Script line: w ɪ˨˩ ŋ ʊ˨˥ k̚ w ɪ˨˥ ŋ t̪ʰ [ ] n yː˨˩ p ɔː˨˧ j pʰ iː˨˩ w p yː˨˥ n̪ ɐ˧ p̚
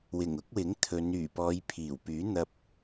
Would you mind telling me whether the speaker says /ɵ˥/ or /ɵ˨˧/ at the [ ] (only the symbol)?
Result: ɵ˨˧